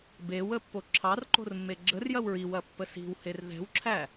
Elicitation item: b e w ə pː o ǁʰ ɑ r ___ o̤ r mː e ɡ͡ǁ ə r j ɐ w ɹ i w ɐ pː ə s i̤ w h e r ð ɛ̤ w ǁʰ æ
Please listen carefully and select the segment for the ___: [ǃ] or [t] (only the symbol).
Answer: ǃ